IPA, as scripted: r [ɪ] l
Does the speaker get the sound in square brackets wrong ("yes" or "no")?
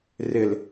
no